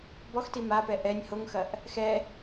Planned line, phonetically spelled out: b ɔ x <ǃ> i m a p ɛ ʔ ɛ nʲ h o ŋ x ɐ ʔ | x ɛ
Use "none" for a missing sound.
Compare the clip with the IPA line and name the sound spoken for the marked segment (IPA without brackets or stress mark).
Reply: t